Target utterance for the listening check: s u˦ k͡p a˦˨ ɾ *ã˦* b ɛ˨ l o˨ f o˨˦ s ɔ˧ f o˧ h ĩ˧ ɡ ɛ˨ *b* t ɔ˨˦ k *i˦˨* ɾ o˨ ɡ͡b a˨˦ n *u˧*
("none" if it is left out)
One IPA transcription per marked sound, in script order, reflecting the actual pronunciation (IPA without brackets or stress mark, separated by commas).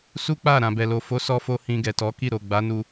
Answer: ã˨, none, i˦˨, u˧